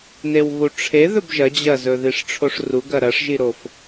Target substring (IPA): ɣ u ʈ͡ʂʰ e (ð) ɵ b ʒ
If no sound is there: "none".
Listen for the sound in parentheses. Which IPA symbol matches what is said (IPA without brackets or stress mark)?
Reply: ð